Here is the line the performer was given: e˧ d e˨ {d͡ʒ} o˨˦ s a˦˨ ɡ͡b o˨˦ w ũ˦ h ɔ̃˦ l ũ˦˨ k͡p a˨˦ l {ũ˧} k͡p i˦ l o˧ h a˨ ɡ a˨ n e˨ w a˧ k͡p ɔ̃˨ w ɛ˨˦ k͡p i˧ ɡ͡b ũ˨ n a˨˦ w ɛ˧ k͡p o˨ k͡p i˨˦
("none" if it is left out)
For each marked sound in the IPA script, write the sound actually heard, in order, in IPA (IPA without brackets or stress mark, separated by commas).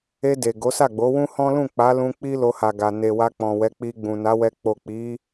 ɡ, ũ˧